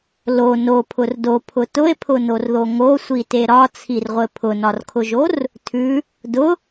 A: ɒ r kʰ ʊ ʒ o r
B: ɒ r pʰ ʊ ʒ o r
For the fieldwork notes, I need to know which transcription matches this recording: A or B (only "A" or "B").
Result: A